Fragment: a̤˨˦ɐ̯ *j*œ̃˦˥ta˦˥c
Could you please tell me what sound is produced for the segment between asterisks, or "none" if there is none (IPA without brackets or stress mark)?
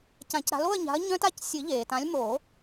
ɲ